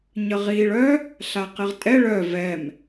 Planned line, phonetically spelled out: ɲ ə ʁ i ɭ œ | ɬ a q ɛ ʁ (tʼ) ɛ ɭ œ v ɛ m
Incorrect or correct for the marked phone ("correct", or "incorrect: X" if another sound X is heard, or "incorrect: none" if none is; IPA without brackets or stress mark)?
correct